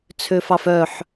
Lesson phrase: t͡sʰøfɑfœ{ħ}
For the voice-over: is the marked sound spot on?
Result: yes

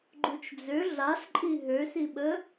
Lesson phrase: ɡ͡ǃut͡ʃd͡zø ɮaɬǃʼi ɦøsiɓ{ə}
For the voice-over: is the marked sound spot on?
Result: yes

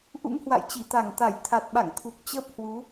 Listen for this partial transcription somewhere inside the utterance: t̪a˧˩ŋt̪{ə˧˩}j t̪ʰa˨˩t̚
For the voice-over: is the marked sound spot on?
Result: no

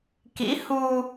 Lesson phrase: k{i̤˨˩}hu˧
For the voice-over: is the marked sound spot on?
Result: no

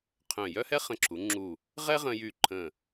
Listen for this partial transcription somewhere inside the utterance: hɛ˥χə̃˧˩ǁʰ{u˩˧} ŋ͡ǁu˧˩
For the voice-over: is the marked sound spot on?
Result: yes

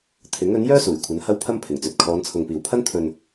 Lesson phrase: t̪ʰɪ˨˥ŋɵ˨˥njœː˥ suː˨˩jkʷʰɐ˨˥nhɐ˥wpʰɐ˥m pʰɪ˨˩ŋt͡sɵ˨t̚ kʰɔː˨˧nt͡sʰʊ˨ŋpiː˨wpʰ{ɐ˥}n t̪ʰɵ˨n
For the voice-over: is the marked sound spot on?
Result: yes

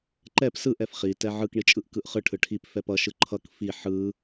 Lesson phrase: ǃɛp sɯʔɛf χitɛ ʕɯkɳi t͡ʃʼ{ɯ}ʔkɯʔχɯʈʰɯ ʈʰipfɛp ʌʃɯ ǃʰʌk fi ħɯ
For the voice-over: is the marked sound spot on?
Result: yes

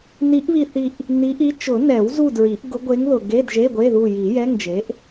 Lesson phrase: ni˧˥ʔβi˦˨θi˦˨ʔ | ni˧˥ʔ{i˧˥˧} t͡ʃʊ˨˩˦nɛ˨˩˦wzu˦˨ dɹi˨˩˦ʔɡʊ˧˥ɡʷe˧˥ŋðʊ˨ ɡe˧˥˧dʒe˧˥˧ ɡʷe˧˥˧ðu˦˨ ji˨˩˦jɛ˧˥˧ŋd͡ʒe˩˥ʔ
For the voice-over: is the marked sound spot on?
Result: no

